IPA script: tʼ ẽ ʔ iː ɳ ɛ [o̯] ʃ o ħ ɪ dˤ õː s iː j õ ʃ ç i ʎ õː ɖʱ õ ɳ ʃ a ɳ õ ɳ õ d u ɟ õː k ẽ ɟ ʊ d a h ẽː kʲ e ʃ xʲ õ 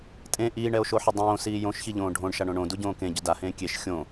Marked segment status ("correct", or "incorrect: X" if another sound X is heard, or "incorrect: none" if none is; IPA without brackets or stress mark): correct